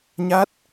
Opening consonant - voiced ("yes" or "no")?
yes